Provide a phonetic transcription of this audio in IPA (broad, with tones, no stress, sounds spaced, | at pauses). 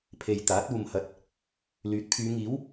pʰ e˨ j t̪ aː˨˥ t̚ uː˨ m h ɐ˨˥ t̚ | l yː˨˥ t̚ pʰ yː˨˧ ŋ iː˨˥ w